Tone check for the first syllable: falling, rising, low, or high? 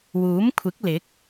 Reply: rising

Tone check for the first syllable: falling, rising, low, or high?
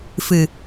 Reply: low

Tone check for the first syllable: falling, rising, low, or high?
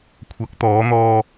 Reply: rising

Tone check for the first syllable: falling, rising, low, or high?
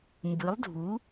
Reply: rising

